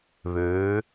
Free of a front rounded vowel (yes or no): no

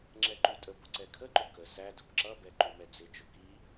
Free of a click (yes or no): no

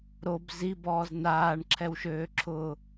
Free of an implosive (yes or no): yes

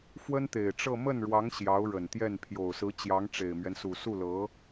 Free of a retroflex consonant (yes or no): no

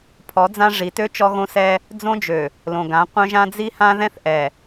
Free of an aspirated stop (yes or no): no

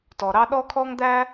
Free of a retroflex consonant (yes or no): yes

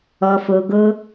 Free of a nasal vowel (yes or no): yes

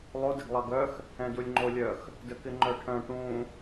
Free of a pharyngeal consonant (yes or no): yes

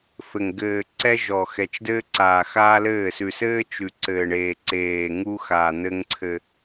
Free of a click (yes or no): no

